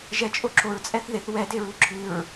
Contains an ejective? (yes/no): yes